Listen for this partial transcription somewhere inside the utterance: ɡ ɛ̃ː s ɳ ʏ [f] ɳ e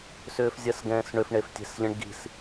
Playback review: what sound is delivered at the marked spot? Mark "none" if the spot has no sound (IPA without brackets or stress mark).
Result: f